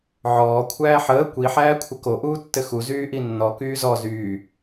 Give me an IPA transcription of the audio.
ʕɔː kʷʰæːħəː kʷi ħæːkʷʰəko ʔuːtːɘxu zyːʔinːɔ kyːzɔ zyː

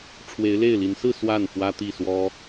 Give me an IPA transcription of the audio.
ʈ͡ʂʰwe˧˥ɪ̯le˥˩ɪ̯li˧˥n sɹ̩˥˧ swa˥˩n fwä˥t̪i˥˩swɔ˥

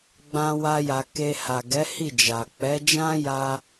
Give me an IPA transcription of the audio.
ɡ͡bã˦wa˦ja˧ ke˧ ha˨ɡɛ˨˦ hi˦˨d͡ʒa˨ k͡pɛ˨˦d͡ʒã˦ja˧

